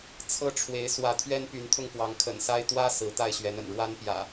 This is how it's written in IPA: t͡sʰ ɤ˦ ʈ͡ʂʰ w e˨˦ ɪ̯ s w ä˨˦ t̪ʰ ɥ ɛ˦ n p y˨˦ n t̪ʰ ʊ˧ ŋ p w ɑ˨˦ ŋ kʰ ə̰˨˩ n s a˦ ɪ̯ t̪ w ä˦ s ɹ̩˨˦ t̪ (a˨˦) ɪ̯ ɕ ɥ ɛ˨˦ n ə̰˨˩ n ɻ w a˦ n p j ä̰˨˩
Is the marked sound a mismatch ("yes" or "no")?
yes